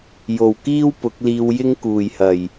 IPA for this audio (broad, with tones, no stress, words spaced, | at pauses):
jo˨˩wkiː˥w pʊ˨˥k̚liː˧wjɪ˥ŋ kuː˨˩jhɐ˨˩j